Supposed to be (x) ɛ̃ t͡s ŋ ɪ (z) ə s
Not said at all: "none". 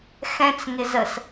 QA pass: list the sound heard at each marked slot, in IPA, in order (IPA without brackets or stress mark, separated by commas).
x, z